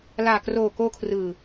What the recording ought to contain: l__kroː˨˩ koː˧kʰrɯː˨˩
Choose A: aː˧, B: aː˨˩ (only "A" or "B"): B